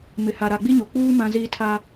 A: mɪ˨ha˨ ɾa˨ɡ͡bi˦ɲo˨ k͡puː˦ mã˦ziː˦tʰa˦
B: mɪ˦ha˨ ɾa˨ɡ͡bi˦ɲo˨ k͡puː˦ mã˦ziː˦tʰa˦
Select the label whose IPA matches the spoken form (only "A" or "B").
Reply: A